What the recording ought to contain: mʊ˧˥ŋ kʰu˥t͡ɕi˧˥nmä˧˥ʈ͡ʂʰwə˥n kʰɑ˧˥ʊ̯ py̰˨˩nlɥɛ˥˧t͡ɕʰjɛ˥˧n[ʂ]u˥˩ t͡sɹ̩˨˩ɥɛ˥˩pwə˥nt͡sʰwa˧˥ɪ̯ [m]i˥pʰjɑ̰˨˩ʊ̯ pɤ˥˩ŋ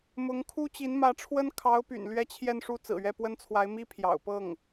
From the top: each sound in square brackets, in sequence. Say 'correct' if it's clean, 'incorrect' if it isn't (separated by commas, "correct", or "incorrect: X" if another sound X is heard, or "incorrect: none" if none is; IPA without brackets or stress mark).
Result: correct, correct